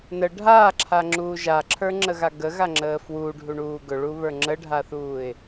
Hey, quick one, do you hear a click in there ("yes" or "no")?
yes